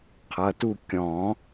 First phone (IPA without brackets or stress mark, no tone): qʰ